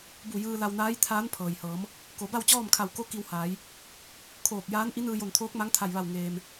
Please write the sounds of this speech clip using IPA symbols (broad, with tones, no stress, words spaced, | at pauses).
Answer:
bu˧˩jɯː˧la˧wnaː˧˥j t̪ʰaː˧˥npʰɤː˩jhɤː˩˧m | ko˩˧ ba˥˨wt͡ɕɔː˥˨mkʰa˧˩w ko˧˥ ki˧whaː˩˧j | kʰoː˧˩k̚jaː˧˥n ʔi˧˥nɯː˧jo˧˩nt̪ʰoː˧˥k̚ ma˧˥ŋt̪ʰa˧˩jʋa˧˩w ŋeː˩m